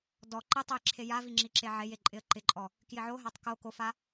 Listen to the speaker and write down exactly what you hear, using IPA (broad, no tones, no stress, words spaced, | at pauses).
dɔ ǃɪtˤoj ǁʰejavi ŋ͡ǁiǁeʕeje ǃʼɪə̯ǃɪǃʼɔ | kjɪʕoɦatˤ ko kofa